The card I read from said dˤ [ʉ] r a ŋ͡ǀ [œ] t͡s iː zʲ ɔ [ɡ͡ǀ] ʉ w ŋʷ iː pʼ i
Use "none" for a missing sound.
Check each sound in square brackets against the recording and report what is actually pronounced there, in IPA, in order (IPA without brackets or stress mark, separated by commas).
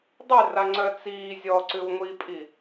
ʉ, œ, ǀ